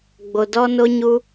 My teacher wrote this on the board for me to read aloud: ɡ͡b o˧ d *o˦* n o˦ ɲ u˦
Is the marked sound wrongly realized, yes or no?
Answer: yes